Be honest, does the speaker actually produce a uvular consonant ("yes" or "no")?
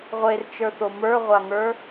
yes